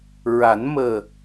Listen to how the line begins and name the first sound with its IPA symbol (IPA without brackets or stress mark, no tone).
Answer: ɹ